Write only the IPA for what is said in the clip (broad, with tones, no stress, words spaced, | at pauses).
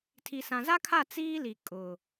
tʰi˨sã˨za˦kʰa˦˨ t͡siː˦li˨ kʼʊ˨